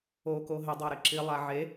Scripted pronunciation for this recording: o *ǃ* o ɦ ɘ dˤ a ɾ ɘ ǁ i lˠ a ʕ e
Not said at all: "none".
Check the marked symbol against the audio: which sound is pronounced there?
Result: k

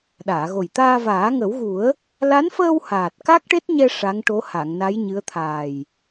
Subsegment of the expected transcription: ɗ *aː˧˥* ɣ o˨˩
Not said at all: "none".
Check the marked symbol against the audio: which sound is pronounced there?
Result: aː˨˩˨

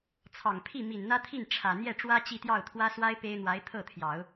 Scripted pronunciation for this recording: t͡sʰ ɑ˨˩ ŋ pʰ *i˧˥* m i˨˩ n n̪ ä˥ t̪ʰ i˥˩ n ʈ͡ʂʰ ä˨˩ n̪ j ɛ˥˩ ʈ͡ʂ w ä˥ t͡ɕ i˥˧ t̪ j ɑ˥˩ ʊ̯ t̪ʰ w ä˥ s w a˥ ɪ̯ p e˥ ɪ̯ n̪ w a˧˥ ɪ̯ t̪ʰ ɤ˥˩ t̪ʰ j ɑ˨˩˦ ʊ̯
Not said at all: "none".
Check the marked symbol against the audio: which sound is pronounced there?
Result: i˥˩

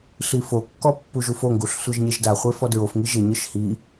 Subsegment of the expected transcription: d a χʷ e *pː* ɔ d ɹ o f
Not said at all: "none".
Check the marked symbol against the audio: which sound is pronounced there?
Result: f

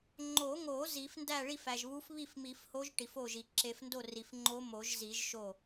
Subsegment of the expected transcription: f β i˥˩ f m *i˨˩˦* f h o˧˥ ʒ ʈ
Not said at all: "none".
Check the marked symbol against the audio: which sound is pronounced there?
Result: i˨˩˦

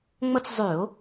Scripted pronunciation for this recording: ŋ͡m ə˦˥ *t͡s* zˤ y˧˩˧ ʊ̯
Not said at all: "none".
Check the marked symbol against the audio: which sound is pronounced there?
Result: t͡s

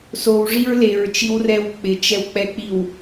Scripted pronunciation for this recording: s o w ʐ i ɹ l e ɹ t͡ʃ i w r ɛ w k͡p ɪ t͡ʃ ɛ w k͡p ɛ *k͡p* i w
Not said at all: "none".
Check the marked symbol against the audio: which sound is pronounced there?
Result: k͡p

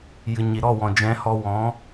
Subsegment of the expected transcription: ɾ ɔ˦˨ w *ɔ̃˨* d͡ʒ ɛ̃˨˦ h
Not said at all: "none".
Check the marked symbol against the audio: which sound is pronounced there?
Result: ɔ̃˨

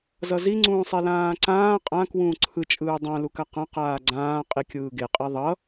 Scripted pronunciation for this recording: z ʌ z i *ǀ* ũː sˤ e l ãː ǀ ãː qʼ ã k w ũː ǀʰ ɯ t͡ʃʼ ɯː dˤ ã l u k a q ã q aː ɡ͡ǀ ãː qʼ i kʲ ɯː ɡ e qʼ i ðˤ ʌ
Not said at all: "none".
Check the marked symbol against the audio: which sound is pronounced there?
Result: ŋ͡ǀ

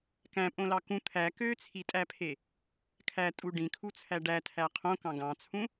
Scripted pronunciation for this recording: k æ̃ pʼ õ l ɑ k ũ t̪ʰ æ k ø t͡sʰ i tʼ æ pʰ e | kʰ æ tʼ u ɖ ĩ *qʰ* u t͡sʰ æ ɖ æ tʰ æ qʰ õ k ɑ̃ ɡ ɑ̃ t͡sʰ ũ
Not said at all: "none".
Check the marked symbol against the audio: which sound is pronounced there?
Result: kʰ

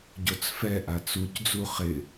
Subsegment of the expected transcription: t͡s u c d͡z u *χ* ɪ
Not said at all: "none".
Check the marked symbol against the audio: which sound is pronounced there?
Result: χ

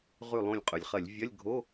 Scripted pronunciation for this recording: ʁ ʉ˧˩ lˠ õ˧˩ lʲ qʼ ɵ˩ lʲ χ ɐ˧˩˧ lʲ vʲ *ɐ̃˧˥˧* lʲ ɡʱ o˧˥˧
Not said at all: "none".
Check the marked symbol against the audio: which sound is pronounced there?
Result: ɐ˧˥˧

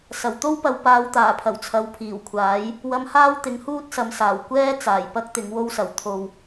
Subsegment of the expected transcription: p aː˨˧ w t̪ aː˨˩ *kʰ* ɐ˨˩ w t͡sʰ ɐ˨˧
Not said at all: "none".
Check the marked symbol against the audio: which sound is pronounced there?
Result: pʰ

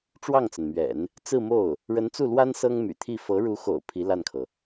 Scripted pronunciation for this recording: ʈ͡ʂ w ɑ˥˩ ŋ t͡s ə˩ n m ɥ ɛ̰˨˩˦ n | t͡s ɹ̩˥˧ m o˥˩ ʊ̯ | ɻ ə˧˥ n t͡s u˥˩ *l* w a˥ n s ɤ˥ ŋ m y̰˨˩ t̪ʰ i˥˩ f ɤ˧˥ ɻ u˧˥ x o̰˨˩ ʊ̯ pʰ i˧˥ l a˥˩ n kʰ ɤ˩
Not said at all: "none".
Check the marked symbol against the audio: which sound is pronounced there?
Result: l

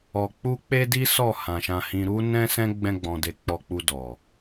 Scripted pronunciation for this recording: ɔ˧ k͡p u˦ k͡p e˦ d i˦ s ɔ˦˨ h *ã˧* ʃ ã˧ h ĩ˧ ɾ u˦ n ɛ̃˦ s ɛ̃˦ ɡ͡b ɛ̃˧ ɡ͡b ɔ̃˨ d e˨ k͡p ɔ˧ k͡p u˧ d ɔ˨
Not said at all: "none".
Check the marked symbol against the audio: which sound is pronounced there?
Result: ã˧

